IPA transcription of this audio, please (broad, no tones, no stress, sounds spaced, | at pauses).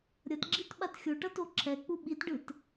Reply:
ɾʲ ʌ t ɡ͡ǁ i t ɓ a t xʲ o ʈ ʌ t o ǁʰ ɛ k͡p u ɓ i t ɖ ɯ t